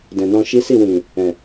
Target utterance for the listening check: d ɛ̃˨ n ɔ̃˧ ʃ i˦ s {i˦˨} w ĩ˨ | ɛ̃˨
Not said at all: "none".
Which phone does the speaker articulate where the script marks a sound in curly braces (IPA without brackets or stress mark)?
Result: i˦˨